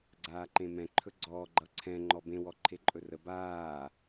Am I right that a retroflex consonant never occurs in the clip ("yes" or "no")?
yes